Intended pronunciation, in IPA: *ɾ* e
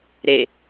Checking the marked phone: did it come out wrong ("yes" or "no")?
no